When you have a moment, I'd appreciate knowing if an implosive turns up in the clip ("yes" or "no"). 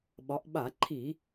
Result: yes